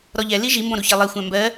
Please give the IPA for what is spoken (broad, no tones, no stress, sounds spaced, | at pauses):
ɾ ɔ ʎ ɛ l i ʒ i m b ɔ̃ ɾ u ç ʌ lˠ i xʷ æ̃ m b ɜ